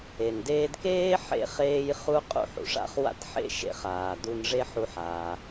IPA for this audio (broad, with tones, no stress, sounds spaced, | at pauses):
e˩ n d eː˧ d k eː˥ ħ ḛ˧ χ eː˧ j χ u˥ qʼ ṵ˥ ħ ṵ˩ ʂ a̰˥ χ w a̰˥ t ħ ḛ˥ ʃ ḛ˧ χ aː˩ d u˧ n ʐ e˥ ħ u˧ ħ a˩